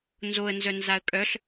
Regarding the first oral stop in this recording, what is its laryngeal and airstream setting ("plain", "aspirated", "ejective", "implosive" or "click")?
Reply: ejective